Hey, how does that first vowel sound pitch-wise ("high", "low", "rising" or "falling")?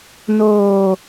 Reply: low